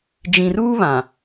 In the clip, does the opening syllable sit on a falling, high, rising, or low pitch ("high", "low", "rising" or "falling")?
low